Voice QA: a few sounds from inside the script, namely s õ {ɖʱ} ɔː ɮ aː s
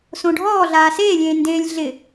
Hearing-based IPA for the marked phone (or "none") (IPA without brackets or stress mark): ɖʱ